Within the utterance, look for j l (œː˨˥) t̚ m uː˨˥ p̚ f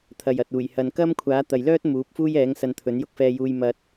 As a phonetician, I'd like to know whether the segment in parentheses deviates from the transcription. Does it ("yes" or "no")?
yes